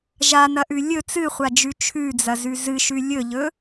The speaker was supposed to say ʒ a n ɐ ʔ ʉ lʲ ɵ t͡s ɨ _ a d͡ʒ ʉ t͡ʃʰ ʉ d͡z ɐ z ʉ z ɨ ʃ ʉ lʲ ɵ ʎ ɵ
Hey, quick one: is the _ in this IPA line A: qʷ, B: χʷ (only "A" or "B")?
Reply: B